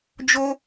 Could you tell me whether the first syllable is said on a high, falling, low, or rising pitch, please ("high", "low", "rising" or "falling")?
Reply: high